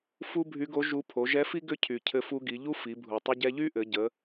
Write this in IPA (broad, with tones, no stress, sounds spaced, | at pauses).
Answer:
f u˥ bʱ y˧˥ ɡ o˧˥ ʒ u˧˥ pʰ o˩˧ ʒ ɛ˧˥ f i˥ ɡ ʏ˥ cʰ y˩ cʰ ɘ˧ f u˧ ɡ i˩˧ ʎ u˥ f i˩˧ bʱ u˩ tˤ ɘ˧ ɟ ɛ˧ ʎ y˥ ʔ ɘ˩˧ ɟ ə˩˧